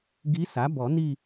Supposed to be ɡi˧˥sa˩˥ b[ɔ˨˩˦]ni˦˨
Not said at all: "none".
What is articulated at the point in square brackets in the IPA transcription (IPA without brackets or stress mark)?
ɔ˨˩˦